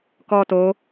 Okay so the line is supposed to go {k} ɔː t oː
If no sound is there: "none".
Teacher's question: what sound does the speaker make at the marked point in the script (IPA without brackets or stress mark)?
k